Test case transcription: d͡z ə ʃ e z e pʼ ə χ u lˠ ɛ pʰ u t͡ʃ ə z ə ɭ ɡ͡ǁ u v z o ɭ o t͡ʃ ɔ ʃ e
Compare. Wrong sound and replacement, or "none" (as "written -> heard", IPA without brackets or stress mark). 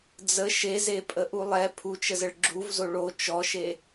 χ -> ʔ